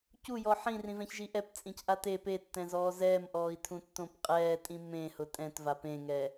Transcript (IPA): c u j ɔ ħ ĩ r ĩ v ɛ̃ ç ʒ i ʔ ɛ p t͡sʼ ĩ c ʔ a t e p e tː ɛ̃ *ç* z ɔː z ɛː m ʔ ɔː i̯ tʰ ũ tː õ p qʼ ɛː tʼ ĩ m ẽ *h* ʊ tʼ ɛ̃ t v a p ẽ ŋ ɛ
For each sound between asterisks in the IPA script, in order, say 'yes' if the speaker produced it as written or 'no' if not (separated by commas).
no, yes